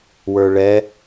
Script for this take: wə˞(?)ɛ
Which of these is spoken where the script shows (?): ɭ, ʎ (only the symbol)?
ɭ